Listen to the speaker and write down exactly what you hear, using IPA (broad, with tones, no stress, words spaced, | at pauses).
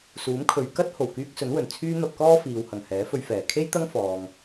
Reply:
suː˨˥mkʰɵ˨˧ɥ kɐ˥t̚ ho˨˩w kyː˧k̚sɵ˨˥nwɵ˨˩n t͡sʰyː˧ n̪ɐ˧p̚kɔː˥ fiː˨whɐ˨˩ŋ hɛː˨˥fɵ˧ɥfɛː˨˩ kʰe˥jt̪ɐ˥ŋ fɔː˧ŋ